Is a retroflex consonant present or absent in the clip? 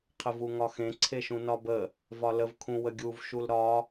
absent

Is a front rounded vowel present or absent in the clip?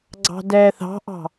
absent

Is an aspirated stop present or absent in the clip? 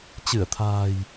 present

